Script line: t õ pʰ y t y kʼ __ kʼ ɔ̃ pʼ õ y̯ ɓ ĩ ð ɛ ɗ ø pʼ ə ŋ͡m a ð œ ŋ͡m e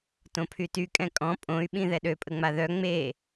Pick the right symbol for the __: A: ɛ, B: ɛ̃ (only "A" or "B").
B